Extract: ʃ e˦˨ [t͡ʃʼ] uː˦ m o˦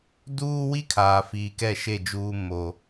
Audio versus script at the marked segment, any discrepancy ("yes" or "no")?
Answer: yes